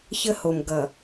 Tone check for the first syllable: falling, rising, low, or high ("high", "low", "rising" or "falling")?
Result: high